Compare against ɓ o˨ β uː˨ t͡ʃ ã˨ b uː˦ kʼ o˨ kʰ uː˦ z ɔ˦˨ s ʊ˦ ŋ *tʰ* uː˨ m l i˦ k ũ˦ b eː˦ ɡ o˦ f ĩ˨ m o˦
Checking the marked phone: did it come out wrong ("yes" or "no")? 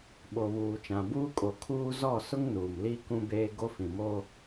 yes